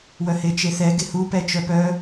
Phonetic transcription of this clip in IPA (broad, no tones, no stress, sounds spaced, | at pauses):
w œ h e t͡ʃ e θ ɛ ɡ e h u p ɛ t͡ʃ œ p œ